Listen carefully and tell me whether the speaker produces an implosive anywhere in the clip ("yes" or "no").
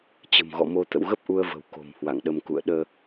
yes